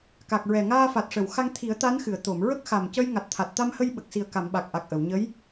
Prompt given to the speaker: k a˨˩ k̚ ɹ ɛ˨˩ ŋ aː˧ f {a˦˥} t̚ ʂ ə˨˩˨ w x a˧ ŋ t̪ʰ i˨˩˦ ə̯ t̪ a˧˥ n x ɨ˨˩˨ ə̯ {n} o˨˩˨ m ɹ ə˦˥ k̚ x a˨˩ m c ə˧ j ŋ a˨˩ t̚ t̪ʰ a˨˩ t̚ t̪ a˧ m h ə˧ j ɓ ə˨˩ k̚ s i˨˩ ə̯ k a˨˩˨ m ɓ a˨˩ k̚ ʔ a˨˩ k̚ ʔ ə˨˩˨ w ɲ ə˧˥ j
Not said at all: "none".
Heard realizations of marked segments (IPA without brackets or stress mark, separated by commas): a˨˩, t̪